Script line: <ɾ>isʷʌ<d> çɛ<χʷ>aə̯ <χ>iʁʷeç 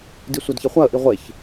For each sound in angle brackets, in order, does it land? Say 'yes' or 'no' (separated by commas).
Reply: no, yes, yes, no